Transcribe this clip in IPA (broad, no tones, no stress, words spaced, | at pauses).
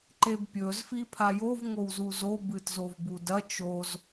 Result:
ǃebpʲɵzfi pʰajov ŋowzuzobɨt zovbudɐ t͡ʃoz